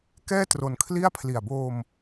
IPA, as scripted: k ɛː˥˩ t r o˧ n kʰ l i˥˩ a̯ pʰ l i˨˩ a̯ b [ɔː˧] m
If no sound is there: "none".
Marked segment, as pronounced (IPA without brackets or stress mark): oː˧